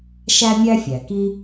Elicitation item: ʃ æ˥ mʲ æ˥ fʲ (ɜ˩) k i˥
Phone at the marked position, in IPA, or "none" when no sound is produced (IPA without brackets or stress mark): æ˩